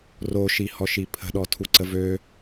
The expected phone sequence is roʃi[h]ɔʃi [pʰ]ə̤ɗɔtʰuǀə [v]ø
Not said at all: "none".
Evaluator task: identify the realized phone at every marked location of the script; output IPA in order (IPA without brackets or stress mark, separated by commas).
h, pʰ, v